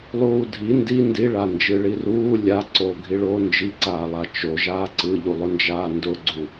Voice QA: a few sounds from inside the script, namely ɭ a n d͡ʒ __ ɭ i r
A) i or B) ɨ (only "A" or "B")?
B